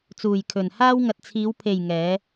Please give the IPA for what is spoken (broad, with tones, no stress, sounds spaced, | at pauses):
t͡s uː˨ j kʰ ɵ˨ n h aː˥ w ŋ ɐ˨ t̚ t͡sʰ iː˨˧ w pʰ e˨ j ŋ ɛː˨˧